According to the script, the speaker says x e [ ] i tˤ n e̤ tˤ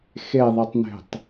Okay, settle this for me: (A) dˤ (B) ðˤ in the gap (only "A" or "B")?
B